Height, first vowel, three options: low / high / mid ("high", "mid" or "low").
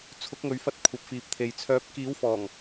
high